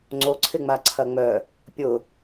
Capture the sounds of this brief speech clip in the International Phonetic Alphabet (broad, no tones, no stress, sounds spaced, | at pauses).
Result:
ŋ͡ǀ o ǀʰ ɪ ŋ͡m a ǀʰ ɐ ŋ͡m œ | pʲ ʊ